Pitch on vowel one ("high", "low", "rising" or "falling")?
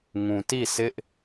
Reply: low